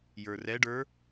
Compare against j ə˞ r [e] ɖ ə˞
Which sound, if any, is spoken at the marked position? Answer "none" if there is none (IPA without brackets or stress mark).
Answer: ɛ